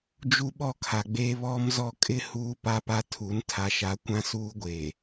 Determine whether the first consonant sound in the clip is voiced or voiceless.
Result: voiced